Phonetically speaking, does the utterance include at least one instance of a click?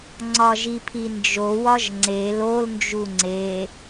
yes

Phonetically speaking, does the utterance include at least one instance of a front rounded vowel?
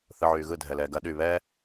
yes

